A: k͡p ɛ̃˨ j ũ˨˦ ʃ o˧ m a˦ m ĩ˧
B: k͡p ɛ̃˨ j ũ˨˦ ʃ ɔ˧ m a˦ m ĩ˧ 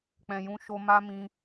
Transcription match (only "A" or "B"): A